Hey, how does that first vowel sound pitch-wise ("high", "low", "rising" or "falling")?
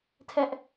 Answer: high